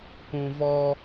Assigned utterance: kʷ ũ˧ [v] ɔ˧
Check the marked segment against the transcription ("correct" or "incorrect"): correct